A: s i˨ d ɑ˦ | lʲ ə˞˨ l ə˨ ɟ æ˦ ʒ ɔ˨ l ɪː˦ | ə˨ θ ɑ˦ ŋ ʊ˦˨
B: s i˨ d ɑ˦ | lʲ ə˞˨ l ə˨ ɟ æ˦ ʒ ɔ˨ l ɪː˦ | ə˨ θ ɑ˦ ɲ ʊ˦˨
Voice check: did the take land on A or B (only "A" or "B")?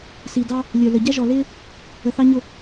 B